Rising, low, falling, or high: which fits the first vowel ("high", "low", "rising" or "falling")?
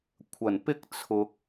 low